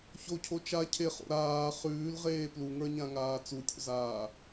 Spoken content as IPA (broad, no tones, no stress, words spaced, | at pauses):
çocʰo t͡ʃa cʰeχo̰ ɾaː χʉːlʁeː pluŋə˞ɲãŋaː t͡sutʲo̰zaː